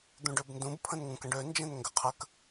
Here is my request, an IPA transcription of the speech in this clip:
d̪ ũ ɖ ø b n d ũ b pʰ ə̃ n ŋ ũ k ə̃ ɖ ø n d͡ʒ ɛ̃ n ŋ ɡ ə qʰ ə k

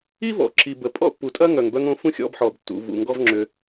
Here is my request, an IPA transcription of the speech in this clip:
i˦ v ɔ̰˨ ǁ i˨ b ə˨ pʼ ɔ̰˦ pː u˨ tʼ ɐ˦ ŋ œ˨ ŋ b œ˧ ŋ õ˧ f ũ˦ xʲ ɔ̰˧ b ħ ɔ˨ b tː ṵ˨ v ṵ˨ ŋ ɡ ɔ˦ v ŋ͡ǁ ʏ˧

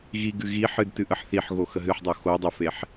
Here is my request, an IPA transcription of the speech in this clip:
ɣ i ɡ ɨ ɣ i ħ ɨ d t ɨ ʔ ə ħ θ i ħ ɣ o x ə ɦ ɨ ħ dˤ o x o dˤ ə f e ħ

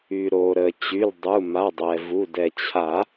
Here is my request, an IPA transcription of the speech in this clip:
y˩ ɾ o˩ ɾ ə˩ t͡ɕ y˩˧˩ l dˤ u˩˧˩ m a˩˧˩ dˤ ɛ˩ v u˩˧˩ d ɛ˩ t͡ɕʰ a˨˩˦

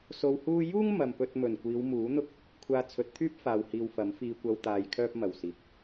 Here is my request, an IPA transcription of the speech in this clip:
s o˧ w h uː˥ j uː˥ ŋ m ɐ˨ m p ɵ˧ t̚ m ɵ˨˩ n kʷ iː˨˧ w m uː˨˥ n̪ ʊ˥ k̚ | kʷʰ aː˧ t͡sʰ ɵ˨˥ t̚ t̪ʰ yː˥ p̚ f aː˨ w h iː˨ w f ɐ˨˥ m f iː˧ kʷ ɐ˧ w t̪ aː˨˧ j kʰ œː˥ p̚ m ɐ˨˩ w s iː˨ k̚

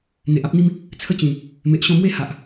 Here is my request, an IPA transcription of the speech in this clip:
n̪ e˨ ʔ a˦ p̚ n̪ i˦ m | t͡sʰ ə˦ t͡ɕ ĩ˨˩ | m e˨ ʔ ɕ ɔ̃˧ m w e˥˧ h a˨ ʔ

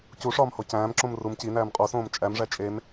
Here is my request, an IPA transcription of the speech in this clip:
c u ʂ ɒː m h o c æ̃ː m ǁ õ m r u m c i n æː m qʼ o s õː m t͡ʃʼ æ m ʐ æ t͡ʃʼ e m

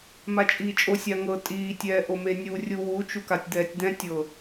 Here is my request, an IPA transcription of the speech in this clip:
m a t͡ʃʼ iː t͡ʃʼ o sʲ a ŋ ɤ tʼ iː tʲ ɛː ʔ o m e nʲ u rʲ u w u t͡ʃ u k a tʲ d̪ ɛː tʲ d̪ ɛ̃ tʲ ɤ

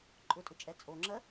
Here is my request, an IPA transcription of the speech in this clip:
ǃʼ ʊ tʼ ʊ t͡ʃʼ ɛ t͡sʼ o ŋ͡ǁ ɜ

